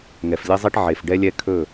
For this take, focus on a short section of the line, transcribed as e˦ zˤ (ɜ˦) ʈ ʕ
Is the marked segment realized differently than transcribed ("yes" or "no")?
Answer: yes